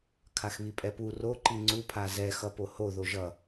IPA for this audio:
kʰaxβipʼɛpu ro ǃiŋ͡ǀupʰa zɛxʌpo ho ðoʒʌ

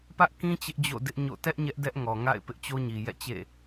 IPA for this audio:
pä˦ʔkĩ˦ t͡ɕɪ˦ʔd͡ʑo̰˦˨dɪ˦ʔɲo̰˦˨ tɛ˦ʔ ɲɛ˦ʔdɛ˦ʔŋɔ˨ ŋa̰˦˨ɪ̯ pɪ˦ʔt͡ɕo˦ɲi˨ jɛ̰˦˨t͡ɕḛ˦˨

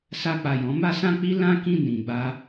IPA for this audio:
sa˧k͡pa˨ jɔ̃˨˦ma˦sã˦k͡pi˦ lã˦kĩ˦˨ nĩ˨ɡ͡ba˧

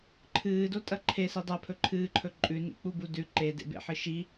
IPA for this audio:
ǃʰɨːdotʼɐ ǃʰesi dˤɐpʰɵ ǃʰɨːǃʰɵ ǃʼʉnḭk͡pubu dʉ ǃedḛbḛħɨ ʃi

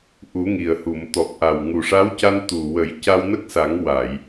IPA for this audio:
ʔu˨˩˦ŋi˨˩ə̯hu˨˩˨m t̪ɔ˨˩k̚ʔa˨˩w ŋu˨˩ʂa˧˥wca˧n t̪u˨˩wə˨˩˦j ca˧wnə˦˥k̚sa˨˩˦ŋ wa˨˩˨j

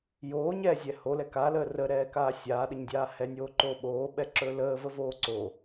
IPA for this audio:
joːɲɛːzʲɛ holɛ kaləː rəɾɛːkaː sʲaːɗəɲdʲaː hɛnʲoːǃoː ɓoːɓɛǁɵː ləːvəvoː ǀo

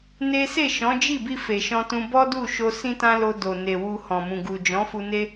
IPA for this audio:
ne˦ se˦˨ʃɔ̃˨˦d͡ʒi˦˨bi˧ fe˨ʃɔ̃˧tũ˧ bɔ˦du˦˨ʃo˧ sĩ˦tã˦lo˧do˨ ne˨wu˧hɔ̃˨mũ˨ ɡu˨d͡ʒɔ̃˨˦fu˧ne˦

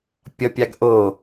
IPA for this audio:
pʲʌpʲaɡ ʔo

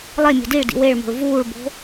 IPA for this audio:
lˠe mʲo̤diɭdḭ weɭmo̤ɭ vuːɭbo̤

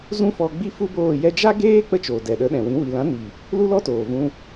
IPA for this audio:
zũ˦fɔ˧ ɡ͡bi˦fu˦boː˦˨ jɛ˧d͡ʒa˦ɡeː˦ k͡pə˦t͡ʃoː˨dɛ˨ ɗə˨˦ɗɛ̃˨wĩ˨˦ wi˨lã˨˦ni˨ | lu˦lɔ˦toː˨vũ˧

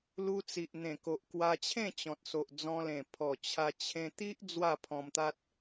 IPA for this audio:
lu˧t͡si˨ʔ n̪ẽ˨˩ko˨ʔ kwa˧t͡ɕʰẽ˥˧ t͡ɕɔ̃˨t̚so˨ʔ d͡zɔ̃˧lẽ˨˩ pʰɔ˨˩ t͡ɕʰa˧t͡ɕʰẽ˧ t̪i˦ʔ d͡zwa˥˧ pʰɔ̃˧mt̪a˦t̚

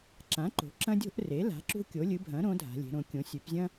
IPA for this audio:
ǁã˩˥ǃo̤˩˧ǁɐ̃˦dʲo̤˦ʔ re˩˥la̤˩˥ǁṳ˦ kʲo˩˥lʲɨ˩˥ bʱɐ̃˩˥ ɾõ˩˥dʱa̤˩˧lʲe̤˩˧ɾõ˩˧ kʲõ˩˧sʲʉ˩˧pzʲɐ̃˦

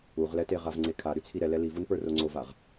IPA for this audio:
uʁlɛte ʁavŋ͡ǀekʰa ɾyt͡sʰiɾɛ lɛlivun pə˞roŋ͡ǀovaʁ

